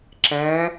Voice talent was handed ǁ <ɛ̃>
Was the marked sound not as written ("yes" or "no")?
no